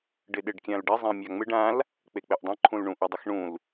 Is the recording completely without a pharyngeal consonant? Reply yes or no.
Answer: yes